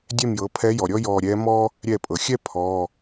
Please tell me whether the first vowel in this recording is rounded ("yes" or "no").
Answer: no